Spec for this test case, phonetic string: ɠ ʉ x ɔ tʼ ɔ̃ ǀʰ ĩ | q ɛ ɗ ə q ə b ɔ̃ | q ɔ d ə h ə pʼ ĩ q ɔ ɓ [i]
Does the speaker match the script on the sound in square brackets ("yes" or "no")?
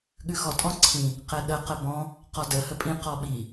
yes